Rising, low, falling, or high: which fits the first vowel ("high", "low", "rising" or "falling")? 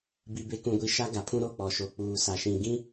low